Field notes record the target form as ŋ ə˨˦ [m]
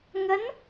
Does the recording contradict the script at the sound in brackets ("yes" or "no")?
yes